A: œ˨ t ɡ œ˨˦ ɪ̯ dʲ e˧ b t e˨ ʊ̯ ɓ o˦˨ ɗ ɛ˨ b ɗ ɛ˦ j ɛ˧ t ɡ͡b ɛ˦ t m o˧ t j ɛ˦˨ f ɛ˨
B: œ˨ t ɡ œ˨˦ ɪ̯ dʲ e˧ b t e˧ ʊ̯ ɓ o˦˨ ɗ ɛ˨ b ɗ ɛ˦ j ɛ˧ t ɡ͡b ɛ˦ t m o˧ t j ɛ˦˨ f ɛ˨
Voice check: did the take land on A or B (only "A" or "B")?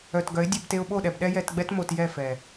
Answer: B